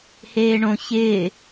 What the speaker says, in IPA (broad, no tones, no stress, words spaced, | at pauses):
heːɳõ çɪː